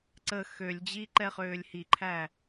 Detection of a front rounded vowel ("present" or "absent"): present